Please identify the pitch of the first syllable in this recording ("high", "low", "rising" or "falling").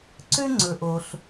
high